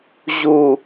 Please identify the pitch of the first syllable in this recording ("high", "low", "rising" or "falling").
low